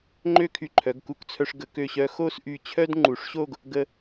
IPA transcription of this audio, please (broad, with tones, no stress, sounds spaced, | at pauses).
ŋ͡ǃ ø˥˧ kʰ y˧ ǃʰ œ˩˧ ɡ k u˧ k t͡sʰ œ˧ ʂ ɡ ə˩˧ k ø˧˩ ɕ œ˧ x o˥˧ s ʔ y˧˩ t͡ɕʰ œ˥ d ŋ͡ǃ u˩˧ ʂ ɕ o˥˧ ɡ | ɡ ə˧